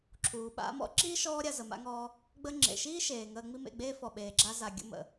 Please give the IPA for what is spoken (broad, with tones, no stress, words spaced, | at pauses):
ǁʰuː˨ ɓa̰˧mɔ̰˦ ǁiː˦ʃɔː˧ɾʲa˨ zə˨ma̰˧ŋɔː˧ | ɡ͡bə˦ ŋ͡ǁḛ˨ʃiː˦ ʃeː˨ŋəː˧ŋ͡mi˦ mḛ˦˨ɡ͡beː˦fɔ˨ ɓeː˨ɡ͡ǁa˧za˨ ɡʲə̰˦ mə̰˨